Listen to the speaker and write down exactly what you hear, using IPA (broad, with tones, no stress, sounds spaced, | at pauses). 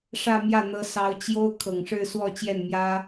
ʂ ä˥˧ m j ä˥˩ n̪ ɤ˥ s ɑ˧˥ ʊ̯ t͡ɕ j o˥ ʊ̯ kʰ ɤ˨˩ ŋ ʂ ɻ̩˥˧ s w ɔ˥˧ t͡ɕ j ɛ˥˩ n m j ä˥